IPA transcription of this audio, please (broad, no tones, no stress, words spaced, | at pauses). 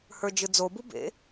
hə˞d͡ʒɯd͡zobu bḛ